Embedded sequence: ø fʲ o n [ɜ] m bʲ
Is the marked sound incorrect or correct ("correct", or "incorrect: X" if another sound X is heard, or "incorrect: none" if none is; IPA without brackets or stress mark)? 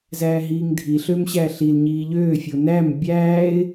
incorrect: æ